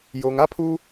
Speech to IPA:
joː˨ŋa˦pʰuː˦

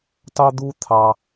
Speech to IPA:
tɑ˥d̪u˥ t̪ʰɑ˧

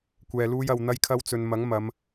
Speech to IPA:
kʷɛː˧luː˥j ɐ˧w n̪ɐ˥jkʰɐ˥wt͡sɵ˧n mɐ˨˥ŋ mɐ˨˧m

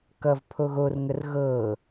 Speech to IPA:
kʌv pʰoɣor ŋərɣɤː

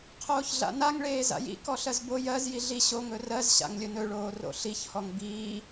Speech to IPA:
qʰoːçɮa̰naŋɭeː za̰jḭ kɔɬɜzbo jɜz jiɮi ɕo ŋɵrɜz ɕa̰ŋlʲɵnɵɭoː ro̰ɬiçhɔŋ biː

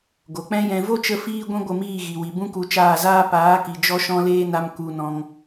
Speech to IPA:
ɡo˨k͡pɛ̃˦jɛ̃˧ vo˦t͡ʃə˧ fiː˦ɡʷĩ˦ɡʷə˦˨miː˦˨ ɣi˨wi˨ bũ˦ku˧t͡ʃaː˦˨zaː˦ paː˨˦ki˨ d͡ʒɔ˦ʃɔ̃˦leː˦na˧m ku˧nɔ̃˧ŋ

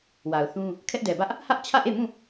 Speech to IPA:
wa˨ʊ̯θũ˦ | kʰɛ˦ʔdɛ˨bä˦ʔ | hä˦ʔt͡ɕʰä˦˨ʔe˦˨mũ˦˨

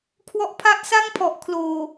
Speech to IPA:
kʰwɔ˥˩ʔ pʰa˦˥ʔsa˥˩ŋpʰɔ˨˩ʔkʰloː˨˩

